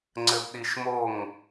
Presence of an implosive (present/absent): present